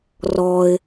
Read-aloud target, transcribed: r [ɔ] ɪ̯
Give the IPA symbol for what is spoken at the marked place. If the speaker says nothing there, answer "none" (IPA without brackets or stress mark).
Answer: ɔ